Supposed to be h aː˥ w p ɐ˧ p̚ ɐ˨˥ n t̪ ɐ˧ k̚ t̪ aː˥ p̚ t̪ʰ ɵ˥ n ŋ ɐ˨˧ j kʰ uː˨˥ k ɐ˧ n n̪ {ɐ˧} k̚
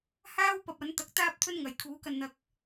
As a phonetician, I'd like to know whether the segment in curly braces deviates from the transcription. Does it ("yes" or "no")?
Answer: no